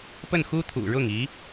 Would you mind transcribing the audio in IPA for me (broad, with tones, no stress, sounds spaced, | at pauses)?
p ə˥˩ n x u˥ t̪ʰ ṵ˨˩ ɻ ʊ˥˩ ŋ i˧˥